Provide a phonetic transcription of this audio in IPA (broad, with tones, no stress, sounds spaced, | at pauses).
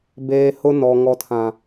b eː˨ h ʊ˦ n ɔ˨ ŋ ɔ˨ tʰ ã˨